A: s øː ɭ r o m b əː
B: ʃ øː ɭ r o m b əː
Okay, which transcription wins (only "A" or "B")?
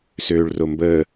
A